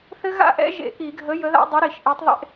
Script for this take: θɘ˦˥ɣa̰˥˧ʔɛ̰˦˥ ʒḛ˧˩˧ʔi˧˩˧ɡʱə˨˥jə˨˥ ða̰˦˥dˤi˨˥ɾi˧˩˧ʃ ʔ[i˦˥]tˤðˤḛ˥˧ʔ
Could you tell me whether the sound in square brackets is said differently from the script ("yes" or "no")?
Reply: yes